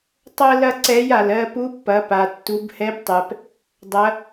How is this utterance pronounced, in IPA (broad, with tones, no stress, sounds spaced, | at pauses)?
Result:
tˤ ɜ˥ l ɐ˥ ǀ ɛ˧˥ j a˩ l ɜ˧ p u˧˥ pː ɐ˩˧ p a˩ tː u˩˧ b h ɛ˧˥ b tˤ ɛ˩ p | dˤ ɐ˧˥